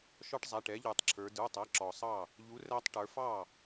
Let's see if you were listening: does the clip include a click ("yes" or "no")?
yes